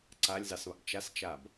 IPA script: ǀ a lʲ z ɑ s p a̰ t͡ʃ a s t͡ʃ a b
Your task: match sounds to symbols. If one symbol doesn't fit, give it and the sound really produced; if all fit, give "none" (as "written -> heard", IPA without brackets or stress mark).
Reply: p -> β